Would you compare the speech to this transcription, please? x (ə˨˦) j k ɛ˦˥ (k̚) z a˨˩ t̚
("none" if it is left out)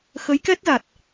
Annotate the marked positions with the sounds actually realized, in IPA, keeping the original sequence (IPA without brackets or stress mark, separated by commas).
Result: ə˨˦, t̚